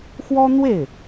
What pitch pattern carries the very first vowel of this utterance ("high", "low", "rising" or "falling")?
high